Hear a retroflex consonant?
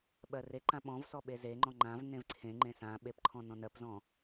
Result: no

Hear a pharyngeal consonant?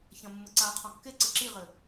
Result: no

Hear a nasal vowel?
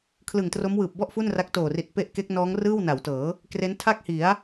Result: no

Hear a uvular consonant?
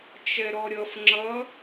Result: no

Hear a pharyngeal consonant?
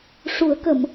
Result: no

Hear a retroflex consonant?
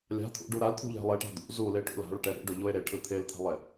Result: yes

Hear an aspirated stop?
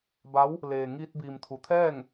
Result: yes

